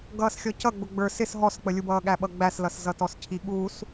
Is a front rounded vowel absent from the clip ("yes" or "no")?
yes